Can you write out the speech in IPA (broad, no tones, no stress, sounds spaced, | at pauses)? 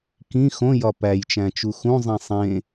k ĩ x õ j ɒ p æ j t͡ʃ æ̃ t͡ʃ u x ũ zˤ ĩ sˤ ẽ